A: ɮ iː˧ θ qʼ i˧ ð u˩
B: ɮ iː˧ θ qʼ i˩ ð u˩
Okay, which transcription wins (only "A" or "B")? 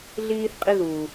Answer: A